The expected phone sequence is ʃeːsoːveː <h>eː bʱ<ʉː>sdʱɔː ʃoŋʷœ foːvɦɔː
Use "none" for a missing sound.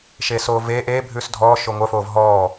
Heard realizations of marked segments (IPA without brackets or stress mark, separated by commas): ʔ, ʉː